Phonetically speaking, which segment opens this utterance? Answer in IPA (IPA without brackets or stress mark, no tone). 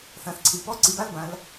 θ